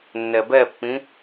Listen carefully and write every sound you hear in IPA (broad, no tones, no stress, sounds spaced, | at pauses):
nː ɛ b ɛ pː ĩ